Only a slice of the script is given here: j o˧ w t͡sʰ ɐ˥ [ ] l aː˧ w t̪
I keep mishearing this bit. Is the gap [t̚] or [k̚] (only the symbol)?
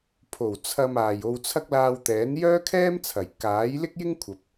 k̚